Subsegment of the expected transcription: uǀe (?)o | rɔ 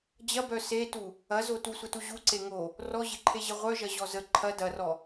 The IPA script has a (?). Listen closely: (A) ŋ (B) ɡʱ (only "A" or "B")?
A